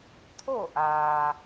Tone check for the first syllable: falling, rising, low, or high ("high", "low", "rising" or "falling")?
falling